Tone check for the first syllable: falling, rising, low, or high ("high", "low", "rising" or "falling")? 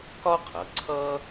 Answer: high